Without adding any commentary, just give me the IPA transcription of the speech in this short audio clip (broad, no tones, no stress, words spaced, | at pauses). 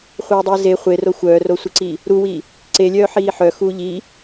χʷœːdˤiːze χʷero xʷœːrosʷiǀiː | ɾuwiː | ǀelʲœː ħiːħœxuː ʎiː